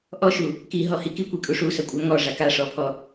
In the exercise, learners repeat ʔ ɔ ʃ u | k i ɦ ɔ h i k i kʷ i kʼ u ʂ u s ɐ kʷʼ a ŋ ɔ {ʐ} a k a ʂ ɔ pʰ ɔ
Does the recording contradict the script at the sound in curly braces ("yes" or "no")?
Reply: no